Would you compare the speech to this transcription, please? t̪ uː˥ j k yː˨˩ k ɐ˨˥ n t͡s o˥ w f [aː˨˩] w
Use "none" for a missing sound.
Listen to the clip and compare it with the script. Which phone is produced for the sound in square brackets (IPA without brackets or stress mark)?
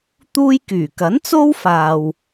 aː˧